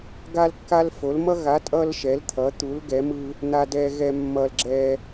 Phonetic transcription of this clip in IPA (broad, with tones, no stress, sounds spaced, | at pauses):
ɡ a˦ l kː a˦ l f o˨˦ l m ʌ˦ ɣ a˨˦ tʼ ʌ˦ l ʃ ɛ˨˦ l t̪ʰ ʌ˨˦ t̪ u˨˦ l ɡ ɛ˨˦ m ɯ˦ | n̪ a˦ d ɛ˦ ɣ ɛ˦ mː ʌ˦ l ɡ͡ǁ ɛ˦